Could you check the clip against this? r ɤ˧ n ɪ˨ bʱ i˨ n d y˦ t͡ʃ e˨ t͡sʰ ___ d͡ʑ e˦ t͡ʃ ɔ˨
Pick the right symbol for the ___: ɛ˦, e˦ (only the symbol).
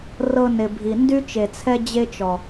ɛ˦